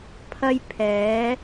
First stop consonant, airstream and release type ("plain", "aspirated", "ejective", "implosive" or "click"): aspirated